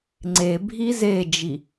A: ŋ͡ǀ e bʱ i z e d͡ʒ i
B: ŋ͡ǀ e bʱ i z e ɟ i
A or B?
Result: A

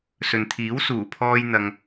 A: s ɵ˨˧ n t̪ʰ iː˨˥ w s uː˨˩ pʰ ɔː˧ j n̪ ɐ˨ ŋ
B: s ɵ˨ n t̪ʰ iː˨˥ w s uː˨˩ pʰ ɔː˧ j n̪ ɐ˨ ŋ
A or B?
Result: B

